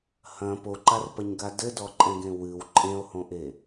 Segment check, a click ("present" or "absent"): present